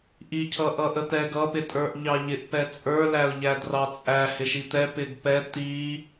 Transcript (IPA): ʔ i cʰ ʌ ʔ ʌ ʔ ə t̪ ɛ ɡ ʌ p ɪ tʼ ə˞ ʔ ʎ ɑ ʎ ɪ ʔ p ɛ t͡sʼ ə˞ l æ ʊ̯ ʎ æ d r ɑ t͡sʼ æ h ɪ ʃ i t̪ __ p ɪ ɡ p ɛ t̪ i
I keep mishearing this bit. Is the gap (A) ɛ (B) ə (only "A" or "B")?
A